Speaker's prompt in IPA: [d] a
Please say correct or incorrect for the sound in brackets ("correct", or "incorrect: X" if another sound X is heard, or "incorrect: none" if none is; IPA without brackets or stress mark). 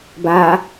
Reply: incorrect: b